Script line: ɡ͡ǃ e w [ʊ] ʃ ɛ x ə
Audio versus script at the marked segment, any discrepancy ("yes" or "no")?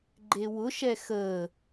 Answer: no